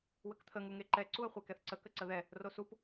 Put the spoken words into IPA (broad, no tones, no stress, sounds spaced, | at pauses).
w ə k t̪ʰ ə ŋ u ŋ e ǃ ɛ ǀ u ə̯ χʷ e k ɛ θ ǀ ə k ə ǀ ə ð ɛ | r o s u p